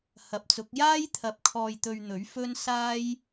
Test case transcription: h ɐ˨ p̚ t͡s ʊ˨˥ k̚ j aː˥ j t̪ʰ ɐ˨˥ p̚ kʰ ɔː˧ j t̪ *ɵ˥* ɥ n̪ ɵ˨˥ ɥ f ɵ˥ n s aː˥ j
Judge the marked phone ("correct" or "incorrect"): incorrect